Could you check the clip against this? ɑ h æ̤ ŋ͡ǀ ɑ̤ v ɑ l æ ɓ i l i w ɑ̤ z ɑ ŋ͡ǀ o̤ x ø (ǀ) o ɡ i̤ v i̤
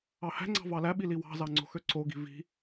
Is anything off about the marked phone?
no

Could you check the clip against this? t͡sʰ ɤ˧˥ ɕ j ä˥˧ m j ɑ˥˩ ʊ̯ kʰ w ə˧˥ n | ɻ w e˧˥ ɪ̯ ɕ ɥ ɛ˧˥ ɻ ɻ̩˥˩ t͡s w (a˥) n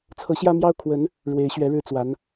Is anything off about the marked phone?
yes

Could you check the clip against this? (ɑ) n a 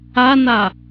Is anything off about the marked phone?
yes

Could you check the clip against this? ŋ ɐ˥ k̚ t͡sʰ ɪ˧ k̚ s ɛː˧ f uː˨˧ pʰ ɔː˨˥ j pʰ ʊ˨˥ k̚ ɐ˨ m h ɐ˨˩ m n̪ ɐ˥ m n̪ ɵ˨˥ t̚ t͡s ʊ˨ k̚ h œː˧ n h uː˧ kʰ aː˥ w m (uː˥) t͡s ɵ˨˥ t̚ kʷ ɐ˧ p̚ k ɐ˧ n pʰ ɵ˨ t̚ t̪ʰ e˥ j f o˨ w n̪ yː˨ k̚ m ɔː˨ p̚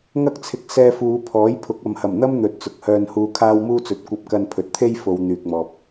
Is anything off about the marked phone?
no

